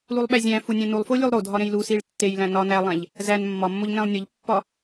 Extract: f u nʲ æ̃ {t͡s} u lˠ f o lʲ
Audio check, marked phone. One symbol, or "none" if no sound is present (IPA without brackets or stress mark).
n